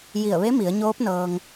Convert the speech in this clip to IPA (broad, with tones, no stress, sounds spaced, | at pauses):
j i˧˩ ə̯ ʋ e˧˥ m i˩˧ ə̯ ɲ oː˧˥ p̚ n ɤː˧ ŋ